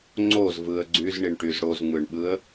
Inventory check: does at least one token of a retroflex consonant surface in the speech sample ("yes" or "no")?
yes